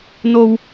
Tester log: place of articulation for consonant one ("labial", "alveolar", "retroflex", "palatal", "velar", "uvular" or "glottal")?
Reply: alveolar